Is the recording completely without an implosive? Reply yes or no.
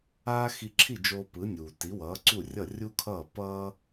yes